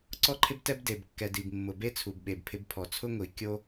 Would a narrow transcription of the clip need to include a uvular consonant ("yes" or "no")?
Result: no